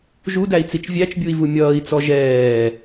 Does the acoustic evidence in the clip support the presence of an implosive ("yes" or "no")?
no